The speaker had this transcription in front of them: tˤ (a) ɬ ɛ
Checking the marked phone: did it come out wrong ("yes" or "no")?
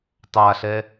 no